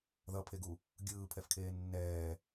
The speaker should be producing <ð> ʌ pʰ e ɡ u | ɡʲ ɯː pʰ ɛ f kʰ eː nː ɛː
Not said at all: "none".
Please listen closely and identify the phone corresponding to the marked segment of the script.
ð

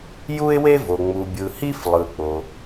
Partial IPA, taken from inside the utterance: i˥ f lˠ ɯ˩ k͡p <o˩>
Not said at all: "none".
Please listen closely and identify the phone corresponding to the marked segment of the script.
o˩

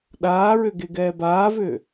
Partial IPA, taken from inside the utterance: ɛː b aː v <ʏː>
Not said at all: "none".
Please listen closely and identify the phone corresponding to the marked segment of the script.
ʏː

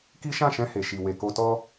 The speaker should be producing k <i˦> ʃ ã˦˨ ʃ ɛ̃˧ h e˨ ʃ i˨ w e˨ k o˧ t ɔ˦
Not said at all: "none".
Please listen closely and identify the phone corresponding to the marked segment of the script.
i˦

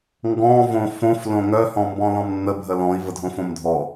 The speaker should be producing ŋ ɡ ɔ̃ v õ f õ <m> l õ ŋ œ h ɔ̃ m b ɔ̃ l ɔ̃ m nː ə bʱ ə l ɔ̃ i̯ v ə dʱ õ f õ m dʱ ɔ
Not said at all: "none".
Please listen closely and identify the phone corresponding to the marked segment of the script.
f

